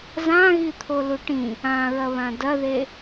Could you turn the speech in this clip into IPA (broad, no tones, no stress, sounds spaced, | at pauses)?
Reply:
z ã ɣ i t̪ʰ o l u ʈ ĩ | ã ɹ ɐ β ã d ɐ ð e